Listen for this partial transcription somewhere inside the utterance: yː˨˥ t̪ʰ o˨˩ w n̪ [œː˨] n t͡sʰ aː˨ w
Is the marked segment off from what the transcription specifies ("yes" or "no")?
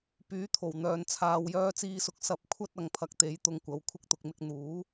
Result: no